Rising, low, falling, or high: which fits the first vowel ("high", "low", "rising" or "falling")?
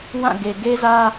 falling